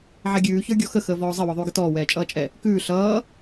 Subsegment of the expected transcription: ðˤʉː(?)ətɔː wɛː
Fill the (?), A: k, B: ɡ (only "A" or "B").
B